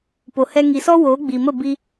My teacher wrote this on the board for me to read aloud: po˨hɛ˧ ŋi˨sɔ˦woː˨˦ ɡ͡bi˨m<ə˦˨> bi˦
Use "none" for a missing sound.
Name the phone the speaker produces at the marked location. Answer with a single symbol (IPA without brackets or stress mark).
ə˦˨